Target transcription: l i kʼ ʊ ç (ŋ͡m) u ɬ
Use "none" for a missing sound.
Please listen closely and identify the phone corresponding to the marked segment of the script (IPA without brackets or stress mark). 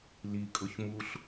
m